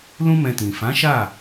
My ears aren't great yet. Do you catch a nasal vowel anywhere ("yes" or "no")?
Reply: yes